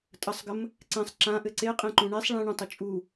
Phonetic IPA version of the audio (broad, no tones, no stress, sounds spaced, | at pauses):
tʼ ə sˤ ɡ ə m | ǀ ɛ̃ sˤ ǁ ã ʔ ɘ ǀ e qʼ ẽ ǃ ũ ɳ e sˤ ɭ ɛ̃ ɳ ũ tˤ ɘ t͡ʃʼ u